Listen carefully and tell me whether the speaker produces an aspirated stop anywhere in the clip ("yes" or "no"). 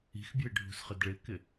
no